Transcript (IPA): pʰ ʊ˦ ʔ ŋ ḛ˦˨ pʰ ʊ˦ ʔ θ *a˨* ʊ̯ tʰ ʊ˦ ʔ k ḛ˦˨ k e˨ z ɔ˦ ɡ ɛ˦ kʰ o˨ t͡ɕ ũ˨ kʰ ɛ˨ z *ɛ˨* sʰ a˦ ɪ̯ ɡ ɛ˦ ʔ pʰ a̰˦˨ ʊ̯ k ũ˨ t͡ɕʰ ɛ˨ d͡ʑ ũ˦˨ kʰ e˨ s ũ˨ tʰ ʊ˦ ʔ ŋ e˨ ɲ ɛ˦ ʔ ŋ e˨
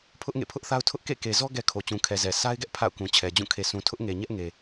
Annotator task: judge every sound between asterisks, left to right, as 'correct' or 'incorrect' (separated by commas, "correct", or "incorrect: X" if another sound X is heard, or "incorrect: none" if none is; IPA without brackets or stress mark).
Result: incorrect: a˦, correct